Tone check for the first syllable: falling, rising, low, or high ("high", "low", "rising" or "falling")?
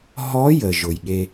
rising